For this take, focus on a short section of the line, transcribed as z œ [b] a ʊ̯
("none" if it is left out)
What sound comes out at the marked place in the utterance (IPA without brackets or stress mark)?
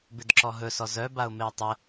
b